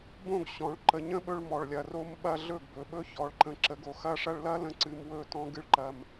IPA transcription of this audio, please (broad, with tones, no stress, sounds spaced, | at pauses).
b õ˦˨ ɡ ɕ ɔ̃˨ ɭ ǃ ə˨ ɲ ə̃˦ ɓ ɵ˧ ɭ m ɔ˨ ɭ lʲ ɐ˨ r o˧ m ɓ ɐ˧ ɮ ɵ˦˨ ɡ b ɵ˨ ɓ ɵ˦ ç ɔ˨ ɭ ǃ ə̃˨ ǁ ə˨˦ ɡ o˨ x ɐ˧ ʂ ɐ˧ ɭ l ɐ˦ l ə̃˧ ǀ ɨ˧ m w ɵ˦˨ t ɔ̃˦ ɡ ɨ˦ ɭ ǃ ɐ˧ m